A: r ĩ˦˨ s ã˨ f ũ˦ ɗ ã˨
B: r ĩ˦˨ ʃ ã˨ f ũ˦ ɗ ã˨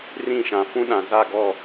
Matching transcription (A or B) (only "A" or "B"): B